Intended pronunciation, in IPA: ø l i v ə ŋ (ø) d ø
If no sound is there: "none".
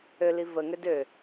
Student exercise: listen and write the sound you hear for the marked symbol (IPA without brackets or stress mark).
ø